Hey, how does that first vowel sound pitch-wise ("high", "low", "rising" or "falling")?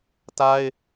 high